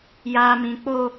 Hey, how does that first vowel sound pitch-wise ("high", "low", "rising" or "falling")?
high